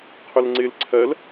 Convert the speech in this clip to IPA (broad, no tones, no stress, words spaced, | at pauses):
qʰʊlŋ͡ǀɪl ǀʰɜl